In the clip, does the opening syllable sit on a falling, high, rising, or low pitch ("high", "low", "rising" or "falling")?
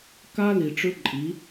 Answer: high